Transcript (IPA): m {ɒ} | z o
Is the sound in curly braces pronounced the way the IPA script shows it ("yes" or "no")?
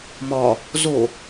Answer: yes